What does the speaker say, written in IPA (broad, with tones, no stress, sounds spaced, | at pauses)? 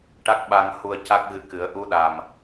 ʈ a˦˥ k̚ ɓ a˧ ŋ h u˧ ə̯ c a˦˥ k̚ ɣ ɨ˧˥ k ɨ˨˩˦ ə̯ ʔ u˧˥ ɗ a˨˩ m